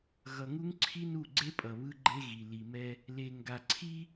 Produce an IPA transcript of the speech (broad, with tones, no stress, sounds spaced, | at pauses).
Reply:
ɣ ʌ˨ ŋ u˦ ŋ ǀʰ i˦ n u˦˨ ɡ͡ǀ e˦ pʼ ʌ˨ β ɯ˦ ɡ͡ǃ e˦ ɣ i˨ l i˨ m ɛ˦ | l e˨ ŋ ɡ a˨ ǀʰ i˦